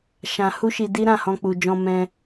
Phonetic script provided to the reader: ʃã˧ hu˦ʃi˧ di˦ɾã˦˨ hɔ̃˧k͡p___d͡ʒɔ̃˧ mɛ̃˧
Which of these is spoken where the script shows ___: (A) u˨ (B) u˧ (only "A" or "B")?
A